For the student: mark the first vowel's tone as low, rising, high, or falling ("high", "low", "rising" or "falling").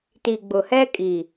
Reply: low